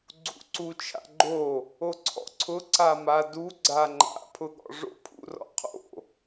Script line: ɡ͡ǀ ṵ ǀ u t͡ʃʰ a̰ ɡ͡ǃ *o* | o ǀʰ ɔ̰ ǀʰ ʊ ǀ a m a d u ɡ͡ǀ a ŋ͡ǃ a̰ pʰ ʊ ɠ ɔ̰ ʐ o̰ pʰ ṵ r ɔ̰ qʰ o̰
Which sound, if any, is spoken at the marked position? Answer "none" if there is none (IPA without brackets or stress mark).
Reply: o